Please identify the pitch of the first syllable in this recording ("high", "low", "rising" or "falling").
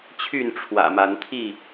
falling